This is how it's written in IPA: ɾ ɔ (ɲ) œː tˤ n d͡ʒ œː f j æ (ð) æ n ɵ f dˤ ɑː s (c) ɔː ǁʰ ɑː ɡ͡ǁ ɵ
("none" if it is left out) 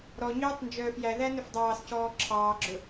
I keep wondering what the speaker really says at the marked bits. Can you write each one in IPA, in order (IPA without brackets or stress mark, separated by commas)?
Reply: ɲ, ð, c